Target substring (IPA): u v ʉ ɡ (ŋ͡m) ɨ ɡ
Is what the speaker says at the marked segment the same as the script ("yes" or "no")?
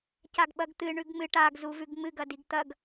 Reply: yes